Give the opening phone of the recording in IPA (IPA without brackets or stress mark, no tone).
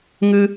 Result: ŋ